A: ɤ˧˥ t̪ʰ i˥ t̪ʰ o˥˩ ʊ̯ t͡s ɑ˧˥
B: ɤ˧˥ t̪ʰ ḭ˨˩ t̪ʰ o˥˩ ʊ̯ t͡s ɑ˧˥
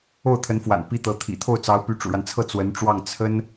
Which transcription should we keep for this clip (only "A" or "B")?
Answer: B